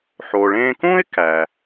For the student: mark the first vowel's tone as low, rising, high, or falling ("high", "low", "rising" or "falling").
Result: low